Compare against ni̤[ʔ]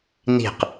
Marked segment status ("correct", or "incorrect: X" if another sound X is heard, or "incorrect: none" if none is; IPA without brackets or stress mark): incorrect: q